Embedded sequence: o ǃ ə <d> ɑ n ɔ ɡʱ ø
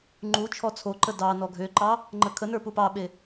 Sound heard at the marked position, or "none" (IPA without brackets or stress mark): d